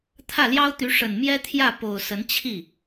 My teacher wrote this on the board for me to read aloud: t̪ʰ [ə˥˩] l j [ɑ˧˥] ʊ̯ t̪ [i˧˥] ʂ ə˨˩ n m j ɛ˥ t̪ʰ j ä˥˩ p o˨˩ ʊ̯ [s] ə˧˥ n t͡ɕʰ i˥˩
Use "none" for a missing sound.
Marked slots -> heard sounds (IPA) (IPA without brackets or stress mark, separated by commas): ä˥˩, ɑ˥, y˧˥, s